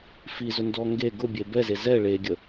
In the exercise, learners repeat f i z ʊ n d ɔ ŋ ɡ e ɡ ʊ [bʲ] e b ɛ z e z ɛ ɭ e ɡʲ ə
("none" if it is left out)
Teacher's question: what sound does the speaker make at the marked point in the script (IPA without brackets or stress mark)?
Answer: bʲ